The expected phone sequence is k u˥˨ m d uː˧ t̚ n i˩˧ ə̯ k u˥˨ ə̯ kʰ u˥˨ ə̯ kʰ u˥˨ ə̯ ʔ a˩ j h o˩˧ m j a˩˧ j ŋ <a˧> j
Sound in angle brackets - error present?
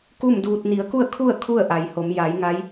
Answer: yes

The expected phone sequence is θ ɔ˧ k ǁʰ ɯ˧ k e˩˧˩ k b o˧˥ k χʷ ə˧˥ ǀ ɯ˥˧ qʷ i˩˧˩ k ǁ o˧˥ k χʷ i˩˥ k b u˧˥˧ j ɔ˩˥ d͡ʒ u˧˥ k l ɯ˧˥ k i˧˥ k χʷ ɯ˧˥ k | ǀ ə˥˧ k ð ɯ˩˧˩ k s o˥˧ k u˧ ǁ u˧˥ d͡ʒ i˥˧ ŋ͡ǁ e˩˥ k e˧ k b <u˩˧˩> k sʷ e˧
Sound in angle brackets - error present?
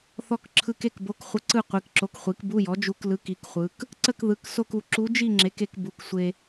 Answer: no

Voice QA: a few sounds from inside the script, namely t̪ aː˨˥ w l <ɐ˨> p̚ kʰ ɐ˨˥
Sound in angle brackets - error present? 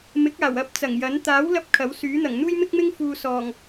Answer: yes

